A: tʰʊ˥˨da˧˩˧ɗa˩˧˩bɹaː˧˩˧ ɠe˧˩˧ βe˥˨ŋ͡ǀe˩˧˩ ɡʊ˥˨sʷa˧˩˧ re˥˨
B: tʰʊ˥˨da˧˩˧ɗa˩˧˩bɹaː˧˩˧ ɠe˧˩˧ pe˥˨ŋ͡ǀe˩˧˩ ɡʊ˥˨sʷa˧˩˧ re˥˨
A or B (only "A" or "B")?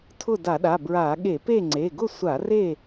B